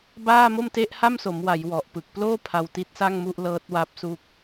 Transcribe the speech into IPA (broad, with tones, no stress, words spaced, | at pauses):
baː˥˩mo˥˩mte˦˥ʔ ha˥˩mso˩˦mwa˩˦j wɔ˨˩ʔ pɯ˨˩k̚ploː˥˩ pʰa˧wti˦˥t̚sa˥˩ŋmu˥˩ʔ lɤː˦˥t̚wa˦˥p̚su˦˥k̚